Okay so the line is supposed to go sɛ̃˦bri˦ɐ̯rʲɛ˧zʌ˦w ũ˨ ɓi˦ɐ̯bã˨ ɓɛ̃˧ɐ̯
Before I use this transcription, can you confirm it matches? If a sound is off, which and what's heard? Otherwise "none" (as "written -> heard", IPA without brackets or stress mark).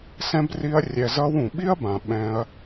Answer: none